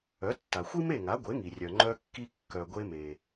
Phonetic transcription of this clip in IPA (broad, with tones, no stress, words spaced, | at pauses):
œ˩˥tːa˩xʷi˥ me˥˩ŋa˩˥ɡʷe˩˥ŋi˩ rʲœ˩ŋ͡ǃœ˧kːi˧ kːœ˩ɡʷe˧me˩